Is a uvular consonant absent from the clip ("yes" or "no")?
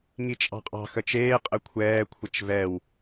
no